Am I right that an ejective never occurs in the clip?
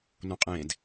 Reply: no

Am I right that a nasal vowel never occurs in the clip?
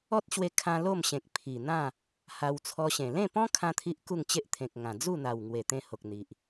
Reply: no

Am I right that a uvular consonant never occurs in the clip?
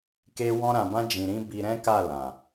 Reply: yes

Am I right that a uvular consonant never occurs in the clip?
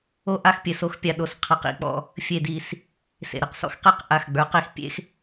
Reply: no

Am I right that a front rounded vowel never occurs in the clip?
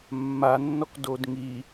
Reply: yes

